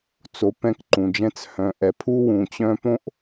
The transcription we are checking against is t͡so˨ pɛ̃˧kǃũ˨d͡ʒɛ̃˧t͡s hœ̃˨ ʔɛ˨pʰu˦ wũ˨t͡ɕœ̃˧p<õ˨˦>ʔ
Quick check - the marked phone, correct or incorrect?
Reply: incorrect